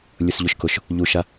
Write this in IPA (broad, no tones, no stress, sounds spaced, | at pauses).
lʲ ʊ s ʎ ʊ ʃ k ʊ ʃ | ʎ u ʃ a